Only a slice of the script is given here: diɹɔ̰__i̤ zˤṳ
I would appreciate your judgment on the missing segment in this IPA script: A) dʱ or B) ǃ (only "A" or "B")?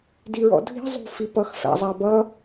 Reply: A